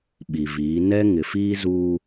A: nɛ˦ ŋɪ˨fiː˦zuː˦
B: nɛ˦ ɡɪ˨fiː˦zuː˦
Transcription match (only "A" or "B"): A